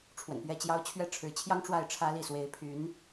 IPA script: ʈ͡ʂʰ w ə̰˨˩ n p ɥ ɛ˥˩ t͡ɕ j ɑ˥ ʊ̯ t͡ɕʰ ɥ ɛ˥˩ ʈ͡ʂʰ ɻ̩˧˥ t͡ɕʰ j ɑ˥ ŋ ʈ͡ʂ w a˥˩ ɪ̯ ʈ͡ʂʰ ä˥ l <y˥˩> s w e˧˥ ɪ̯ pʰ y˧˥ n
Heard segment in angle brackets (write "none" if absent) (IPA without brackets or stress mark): i˥˩